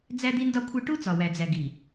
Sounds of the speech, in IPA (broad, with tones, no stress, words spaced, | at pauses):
d͡zæ˦d̪i˦ndɒ˦kʷʰe˦ ʈu˦ t͡sɒ˨wæ˨d͡zæ˨ ɡi˨